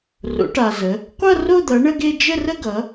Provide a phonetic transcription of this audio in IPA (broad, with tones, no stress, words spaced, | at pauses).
ro̰˩˧ʈa˩zə˩˧ | qʷʌ˥˧ro˥˧d̪ʌ˩˧ ɳə˥˧ɡe˥˧ d͡ʒə˥˧rə˥˧ɡʌ˩˧